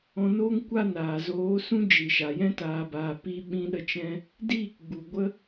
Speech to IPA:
ɔ̃˧ n oː˦ ŋ kʷ a˦ n aː˨ z oː˨˦ s ũ˦ d͡ʒ i˨ ʃ a˨ j ɛ̃˦ t aː˧ b aː˧ p i˦ ɓ ĩ˦ ɗ ə˦ t͡ʃ ɛ̃˦ | d iː˦˨ k ɡ͡b u˨ ɡʷ ə˦

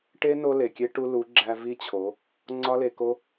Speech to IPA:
ʈ e˦ n o˦ l e˨ kʲ e˦ ʈ u˦ l u˨˦ ɡ͡ǁ æ˧ v i˦ t͡ɕʰ o˨˦ | ŋ͡ǀ ɒ˦ l e˧ k o˦

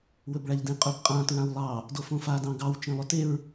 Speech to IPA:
w ɵ b ɭ a ʎ d ẽ qʼ ɵ b qʼ ã t ɹ ã w lˠ ɑ | d o f õ f a d ɑ̃ ɡ ɑ w t͡ʃ ẽ lˠ ɵ t e ɹ

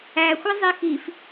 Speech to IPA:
æ xʷ ʌ zˤ i x i f

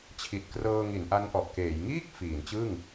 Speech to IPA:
t͡ɕʰ i˨˩ t̚ k r ɤː˧ ŋ i˩˦ n ʔ a˦˥ n ʔ ɔ˨˩ ʔ k eː˩˦ j ŋ iː˥˩ k̚ f iː˩˦ n t͡ɕ ɯ˥˩ ŋ

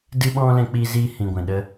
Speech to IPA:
d ɨ˧ ɓ ɔ̃˧ l ɛ̃˧ k͡p iː˧ z iː˧ h ĩ˨ ɡʷ ɛ̃˨ ɗ ə˧

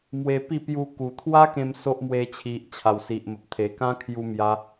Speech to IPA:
m w e˧ p i˥˧ p j u˧ k u˨˩ t̪ʰ w a˦ k ẽ˧ m s o˦ ʔ m w e˧ t͡ɕʰ i˨ ʔ t͡ɕʰ a˨˩ w s i˨ ʔ m ə˨ p̚ t̪ʰ e˨˩ k ã˦ kʰ j u˧ m j a˧

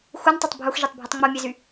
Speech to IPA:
x u n tˤ o tˤ bʱ u x ʒ e tˤ bʱ ø tˤ ŋ͡m o mʲ e z y

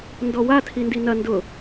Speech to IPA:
n d ɔ w a tʰ i n d i n ɐ n d ʊ

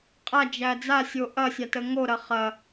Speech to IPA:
qʼ a d͡ʒ æ d͡z a sʲ o ʔ ɐ sʲ a t ə ŋ o ɾ ɐ χ ɐ

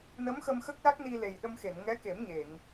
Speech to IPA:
n ə˧˥ m x ə˧ m x ə˦˥ k̚ l a˦˥ k̚ n i˧ l e˨˩ j ɗ ə˧ m x e˨˩˨ n ŋ ɛ˧˥ k e˨˩˦ m ɲ e˨˩˨ ŋ

